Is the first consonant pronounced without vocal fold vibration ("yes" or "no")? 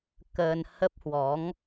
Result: yes